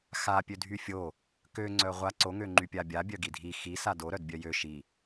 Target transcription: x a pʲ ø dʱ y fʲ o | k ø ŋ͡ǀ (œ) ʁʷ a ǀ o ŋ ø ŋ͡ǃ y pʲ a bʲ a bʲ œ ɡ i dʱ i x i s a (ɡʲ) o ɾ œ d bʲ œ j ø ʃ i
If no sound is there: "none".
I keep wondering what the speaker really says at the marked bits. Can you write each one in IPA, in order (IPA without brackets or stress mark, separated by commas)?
œ, d